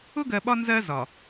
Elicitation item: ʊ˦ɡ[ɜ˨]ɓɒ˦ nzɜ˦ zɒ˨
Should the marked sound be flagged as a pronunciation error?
no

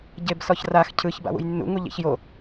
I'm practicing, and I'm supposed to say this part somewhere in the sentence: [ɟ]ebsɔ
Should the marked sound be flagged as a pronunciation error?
no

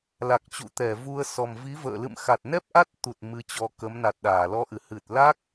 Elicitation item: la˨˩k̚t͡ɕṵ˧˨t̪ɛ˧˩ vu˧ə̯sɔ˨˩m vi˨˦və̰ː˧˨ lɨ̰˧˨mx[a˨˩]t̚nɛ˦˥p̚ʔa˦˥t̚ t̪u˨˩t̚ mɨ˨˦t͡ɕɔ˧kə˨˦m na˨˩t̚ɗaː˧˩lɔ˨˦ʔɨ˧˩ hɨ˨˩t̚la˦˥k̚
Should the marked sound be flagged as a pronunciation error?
no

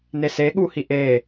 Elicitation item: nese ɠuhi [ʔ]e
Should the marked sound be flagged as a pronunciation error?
no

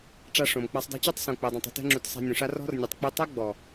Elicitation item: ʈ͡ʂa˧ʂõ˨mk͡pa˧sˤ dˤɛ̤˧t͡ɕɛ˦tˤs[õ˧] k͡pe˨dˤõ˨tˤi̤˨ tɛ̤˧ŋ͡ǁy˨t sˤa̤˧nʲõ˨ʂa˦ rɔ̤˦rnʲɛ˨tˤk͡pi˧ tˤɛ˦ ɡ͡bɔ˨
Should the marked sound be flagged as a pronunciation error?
yes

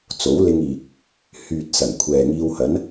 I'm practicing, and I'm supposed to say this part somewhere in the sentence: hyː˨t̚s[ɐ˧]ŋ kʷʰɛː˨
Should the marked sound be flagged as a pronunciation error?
yes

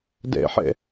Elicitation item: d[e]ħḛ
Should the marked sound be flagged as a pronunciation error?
yes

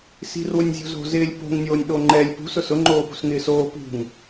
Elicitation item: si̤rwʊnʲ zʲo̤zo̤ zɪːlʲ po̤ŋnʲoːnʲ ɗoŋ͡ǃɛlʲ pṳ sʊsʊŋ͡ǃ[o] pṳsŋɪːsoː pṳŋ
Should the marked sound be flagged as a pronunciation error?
yes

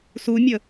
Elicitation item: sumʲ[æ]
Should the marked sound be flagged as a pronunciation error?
yes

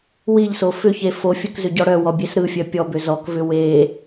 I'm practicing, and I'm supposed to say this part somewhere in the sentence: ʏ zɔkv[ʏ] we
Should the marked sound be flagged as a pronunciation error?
no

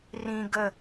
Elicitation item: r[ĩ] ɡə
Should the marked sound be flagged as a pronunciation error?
no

